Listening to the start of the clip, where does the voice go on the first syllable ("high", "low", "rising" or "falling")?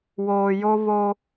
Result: low